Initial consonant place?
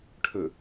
retroflex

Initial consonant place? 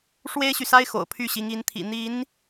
retroflex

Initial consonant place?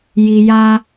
palatal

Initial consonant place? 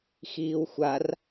velar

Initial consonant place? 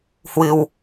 glottal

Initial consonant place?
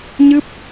palatal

